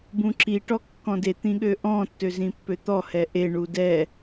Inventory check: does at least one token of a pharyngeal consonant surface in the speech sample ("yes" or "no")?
no